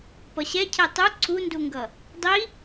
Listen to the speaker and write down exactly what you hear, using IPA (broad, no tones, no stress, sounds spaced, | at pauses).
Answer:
p ʌ ɕ ɛ cʰ ɛ tˤ u ǀʰ u n d u ŋ ɡ ʌ | dˤ i